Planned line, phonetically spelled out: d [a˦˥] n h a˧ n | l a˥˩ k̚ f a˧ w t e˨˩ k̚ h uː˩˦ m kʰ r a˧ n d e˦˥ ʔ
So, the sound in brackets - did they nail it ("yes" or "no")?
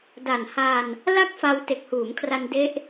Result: no